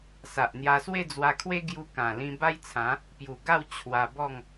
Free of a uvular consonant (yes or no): yes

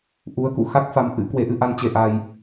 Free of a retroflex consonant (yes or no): yes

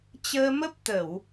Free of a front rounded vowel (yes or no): yes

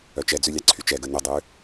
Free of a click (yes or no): no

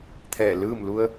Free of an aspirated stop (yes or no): no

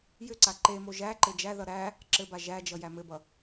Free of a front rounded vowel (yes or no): no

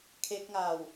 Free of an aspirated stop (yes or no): no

